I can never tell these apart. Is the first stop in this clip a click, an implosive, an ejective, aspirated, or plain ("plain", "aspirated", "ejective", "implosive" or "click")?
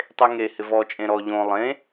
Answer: plain